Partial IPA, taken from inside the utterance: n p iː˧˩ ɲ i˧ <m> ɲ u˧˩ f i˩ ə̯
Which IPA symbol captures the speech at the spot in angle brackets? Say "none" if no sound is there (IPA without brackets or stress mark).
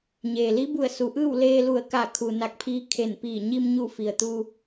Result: m